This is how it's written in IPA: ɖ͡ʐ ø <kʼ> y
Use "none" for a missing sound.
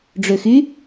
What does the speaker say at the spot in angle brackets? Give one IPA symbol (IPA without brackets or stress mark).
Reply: x